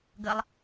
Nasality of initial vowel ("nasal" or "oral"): oral